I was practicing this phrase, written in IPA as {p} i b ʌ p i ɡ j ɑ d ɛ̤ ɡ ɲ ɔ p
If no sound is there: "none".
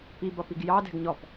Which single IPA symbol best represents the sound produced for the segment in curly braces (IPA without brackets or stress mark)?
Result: p